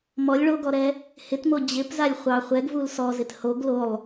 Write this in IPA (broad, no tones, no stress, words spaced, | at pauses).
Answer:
mɔlʲ ɭoɡɔɾɛ | hɪtmo d͡ʑɪpzalʲ χʷɑ χʷɛɡvul sɔzɪt hoɡ lolˠ